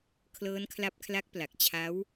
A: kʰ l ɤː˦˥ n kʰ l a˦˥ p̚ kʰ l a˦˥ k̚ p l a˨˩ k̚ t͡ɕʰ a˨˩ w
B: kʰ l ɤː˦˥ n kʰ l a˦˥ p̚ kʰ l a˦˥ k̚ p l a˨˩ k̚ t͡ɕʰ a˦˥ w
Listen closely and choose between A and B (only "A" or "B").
B